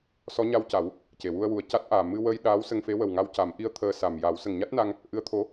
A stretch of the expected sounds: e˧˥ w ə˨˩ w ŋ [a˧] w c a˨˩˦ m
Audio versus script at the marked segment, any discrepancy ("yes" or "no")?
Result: no